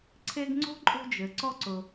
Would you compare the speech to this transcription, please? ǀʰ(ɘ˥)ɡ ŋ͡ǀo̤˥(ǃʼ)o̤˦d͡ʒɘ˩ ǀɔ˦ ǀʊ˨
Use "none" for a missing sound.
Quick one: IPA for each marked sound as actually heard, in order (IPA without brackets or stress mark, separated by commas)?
e˥, ǃʼ